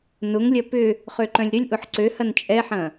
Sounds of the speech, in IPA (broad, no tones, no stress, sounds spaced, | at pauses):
n ʊ ŋ lʲ ɐ p ʏ | χ ø ǃ œ̃ lʲ ɾ ʏ lʲ ʔ ʊ ħ ǀ ø h ɐ n t͡ʃʼ ɛ ħ ɐ̃